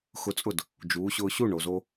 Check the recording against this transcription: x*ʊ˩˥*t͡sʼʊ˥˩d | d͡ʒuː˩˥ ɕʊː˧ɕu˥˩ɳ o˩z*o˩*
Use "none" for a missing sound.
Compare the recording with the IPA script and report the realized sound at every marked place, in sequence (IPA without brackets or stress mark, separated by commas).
ʊ˧, o˧